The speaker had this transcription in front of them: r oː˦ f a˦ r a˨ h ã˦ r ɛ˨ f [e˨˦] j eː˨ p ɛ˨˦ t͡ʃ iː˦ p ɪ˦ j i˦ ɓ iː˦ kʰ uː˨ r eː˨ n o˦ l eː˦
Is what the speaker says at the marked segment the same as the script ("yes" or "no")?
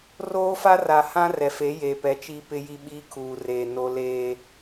yes